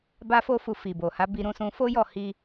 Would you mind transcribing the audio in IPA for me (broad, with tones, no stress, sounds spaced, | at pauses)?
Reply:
b a˦ f o˦ f u˧ f i˨ b o˨ h a˨˦ b i˧ ɾ ũ˧ s ũ˧ f o˦ j ɔ˦˨ h i˧